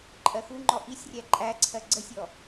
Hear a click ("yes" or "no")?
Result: yes